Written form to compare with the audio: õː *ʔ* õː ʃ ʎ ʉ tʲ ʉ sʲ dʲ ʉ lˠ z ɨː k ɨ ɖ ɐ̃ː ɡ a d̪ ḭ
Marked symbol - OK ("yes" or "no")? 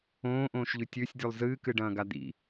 yes